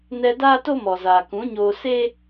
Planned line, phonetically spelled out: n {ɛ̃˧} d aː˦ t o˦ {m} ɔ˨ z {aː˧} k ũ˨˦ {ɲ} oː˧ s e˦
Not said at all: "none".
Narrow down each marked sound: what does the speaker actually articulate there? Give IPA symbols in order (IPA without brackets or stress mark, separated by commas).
ɛ˧, m, aː˨, ɲ